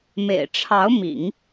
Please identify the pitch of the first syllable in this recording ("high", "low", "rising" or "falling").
low